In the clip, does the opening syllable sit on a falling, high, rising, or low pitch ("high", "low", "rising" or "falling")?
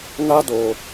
high